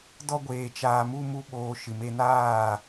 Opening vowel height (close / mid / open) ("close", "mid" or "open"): mid